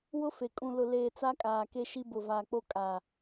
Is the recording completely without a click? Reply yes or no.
yes